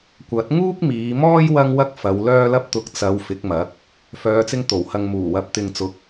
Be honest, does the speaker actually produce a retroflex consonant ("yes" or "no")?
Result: no